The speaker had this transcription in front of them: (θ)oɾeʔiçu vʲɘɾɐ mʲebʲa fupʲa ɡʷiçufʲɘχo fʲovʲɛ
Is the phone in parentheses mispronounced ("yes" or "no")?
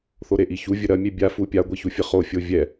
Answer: no